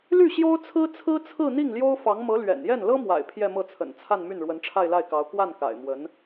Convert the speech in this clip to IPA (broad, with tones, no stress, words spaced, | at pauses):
ly˥˩ ɕjo˥ʊ̯t͡sʰɹ̩˥t͡sʰɹ̩˥t͡sʰɹ̩˥˧ n̪i˥˩ŋljo˥ʊ̯fɑ˧˥ŋ mɤ˧˥ lɥɛ̰˨˩njɛ˥˩n lɤ˥mwa̰˨˩ɪ̯ pʰjɛ˥˧mɤ˥˩t͡sʰə̰˨˩n t͡sʰa˥˧nmy˥˩n ɻwə˧˥nʈ͡ʂʰa˥˧ɪ̯la˥˩ɪ̯kɑ˧˥ʊ̯ kwa˥˩nka̰˨˩ɪ̯mwə˧˥n